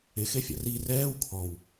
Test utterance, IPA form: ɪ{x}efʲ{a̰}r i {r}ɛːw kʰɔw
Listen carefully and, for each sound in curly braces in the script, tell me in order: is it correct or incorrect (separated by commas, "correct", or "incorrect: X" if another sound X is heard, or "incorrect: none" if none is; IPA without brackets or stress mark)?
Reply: correct, correct, correct